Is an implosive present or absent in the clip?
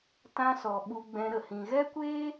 present